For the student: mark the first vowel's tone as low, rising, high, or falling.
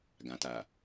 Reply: low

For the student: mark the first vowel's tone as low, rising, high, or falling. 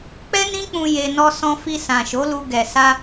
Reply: high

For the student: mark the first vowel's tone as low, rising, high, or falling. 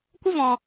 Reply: high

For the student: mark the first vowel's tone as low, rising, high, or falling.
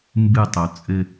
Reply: falling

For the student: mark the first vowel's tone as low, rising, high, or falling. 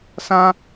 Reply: high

